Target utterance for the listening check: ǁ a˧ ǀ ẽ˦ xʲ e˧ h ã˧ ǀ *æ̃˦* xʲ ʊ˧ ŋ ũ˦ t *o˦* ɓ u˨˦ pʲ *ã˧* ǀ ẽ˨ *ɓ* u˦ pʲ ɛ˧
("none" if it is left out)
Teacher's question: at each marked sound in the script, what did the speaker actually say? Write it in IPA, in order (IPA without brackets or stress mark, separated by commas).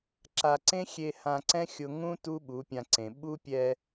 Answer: ɛ̃˦, u˦, ã˧, ɓ